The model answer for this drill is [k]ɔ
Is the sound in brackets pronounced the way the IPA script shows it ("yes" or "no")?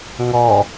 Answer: no